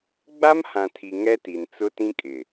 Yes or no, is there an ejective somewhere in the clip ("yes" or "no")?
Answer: yes